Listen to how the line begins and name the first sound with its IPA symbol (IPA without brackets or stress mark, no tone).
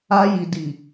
a